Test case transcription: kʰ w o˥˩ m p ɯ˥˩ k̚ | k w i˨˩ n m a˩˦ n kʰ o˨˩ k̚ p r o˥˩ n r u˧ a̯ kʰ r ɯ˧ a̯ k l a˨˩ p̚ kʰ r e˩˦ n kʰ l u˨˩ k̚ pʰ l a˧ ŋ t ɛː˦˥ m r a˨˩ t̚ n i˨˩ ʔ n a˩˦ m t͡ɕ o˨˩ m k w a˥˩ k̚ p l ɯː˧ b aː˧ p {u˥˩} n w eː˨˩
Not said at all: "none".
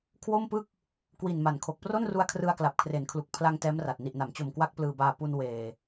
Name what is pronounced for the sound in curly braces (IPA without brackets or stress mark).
u˧